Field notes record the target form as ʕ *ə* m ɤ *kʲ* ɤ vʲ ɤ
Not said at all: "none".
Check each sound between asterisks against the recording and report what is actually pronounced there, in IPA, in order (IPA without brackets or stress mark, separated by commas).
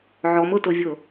ɔ, t